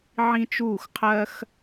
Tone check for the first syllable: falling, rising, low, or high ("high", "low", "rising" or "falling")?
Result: high